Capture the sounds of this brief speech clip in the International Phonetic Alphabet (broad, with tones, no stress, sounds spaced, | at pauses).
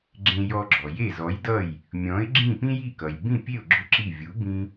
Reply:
ɡ͡ǁ ẽ˧ j ɔ˧ ɡ͡ǁ ɔ˩ j e˥˩ z ɔ˩˥ j d ʌ˥˩ j | mʲ ɔ̃˩˥ ɪ̯ ɡ͡ǁ ĩ˥˩ p ĩ˥ j i˥˩ k ʌ˩ j b ĩ˥˩ pʲ e˥˩ ʊ̯ ɡ͡ǁ ʏ˥˩ ǁ i˥˩ vʲ u˩˥ b ĩ˥